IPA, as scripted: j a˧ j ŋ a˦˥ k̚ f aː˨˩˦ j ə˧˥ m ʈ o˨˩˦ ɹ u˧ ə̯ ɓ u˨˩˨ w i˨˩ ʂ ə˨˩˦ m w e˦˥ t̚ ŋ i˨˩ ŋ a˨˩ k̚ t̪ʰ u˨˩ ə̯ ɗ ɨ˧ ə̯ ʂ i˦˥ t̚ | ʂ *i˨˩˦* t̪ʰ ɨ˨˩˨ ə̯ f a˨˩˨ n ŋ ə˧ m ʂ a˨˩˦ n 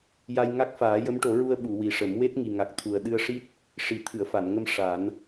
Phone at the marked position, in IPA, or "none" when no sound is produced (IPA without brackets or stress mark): i˨˩˦